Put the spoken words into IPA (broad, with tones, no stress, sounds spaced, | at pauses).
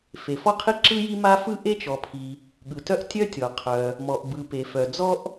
f e˩ f ɔ˥ qʰ i˥ ǁ ɯ˥ j i˥ m a˥ f ɯ˥ ʔ e˥ t͡ʃ ɔ˩ pʰ i˩ | ɠ ɯ˩ t œ˥ ʔ tʲ œ˥ tʲ ɔ˩ qʰ œ˩ | m ɔ˩ ʔ b ɯ˩ p e˩ f œ˩ d͡z ɔ˥ ʔ